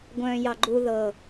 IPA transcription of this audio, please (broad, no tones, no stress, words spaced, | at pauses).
ɡʷœ̃ːjɑɡ͡ǃu ðɤ